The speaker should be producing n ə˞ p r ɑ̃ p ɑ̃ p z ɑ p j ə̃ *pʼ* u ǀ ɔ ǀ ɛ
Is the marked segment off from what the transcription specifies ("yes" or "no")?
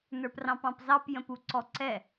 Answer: yes